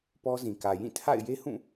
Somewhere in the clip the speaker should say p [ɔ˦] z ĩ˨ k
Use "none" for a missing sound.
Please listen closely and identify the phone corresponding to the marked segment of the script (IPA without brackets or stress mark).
ɔ˦